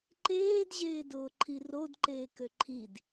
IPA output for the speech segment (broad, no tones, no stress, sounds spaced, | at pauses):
ǃ eː d ʑ eː d ʊː ǃʰ i r o d ǃ eː k ø ǃʰ i d